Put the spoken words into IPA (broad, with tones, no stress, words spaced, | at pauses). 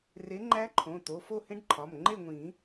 re˨˦ ŋ͡ǃæ˦˥ǃʰõ˩˧˩t̪o˩˧˩ fo˥˨hẽ˦˥ɖǃʰɒ˩˧˩m ŋ͡ǃe˥˨ŋʷĩ˨˩˦